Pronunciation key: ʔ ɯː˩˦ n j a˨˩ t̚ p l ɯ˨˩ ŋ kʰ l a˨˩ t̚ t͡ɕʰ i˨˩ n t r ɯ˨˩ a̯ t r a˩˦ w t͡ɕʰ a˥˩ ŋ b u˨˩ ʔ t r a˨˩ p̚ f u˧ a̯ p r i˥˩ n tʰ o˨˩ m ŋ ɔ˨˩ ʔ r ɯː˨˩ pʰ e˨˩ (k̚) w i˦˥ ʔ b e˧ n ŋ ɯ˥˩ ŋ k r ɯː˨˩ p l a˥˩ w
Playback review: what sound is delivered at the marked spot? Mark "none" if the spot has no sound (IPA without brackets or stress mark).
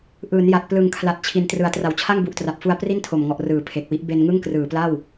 k̚